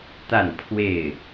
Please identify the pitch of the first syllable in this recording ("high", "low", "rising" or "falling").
falling